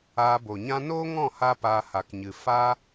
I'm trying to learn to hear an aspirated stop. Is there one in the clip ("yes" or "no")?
no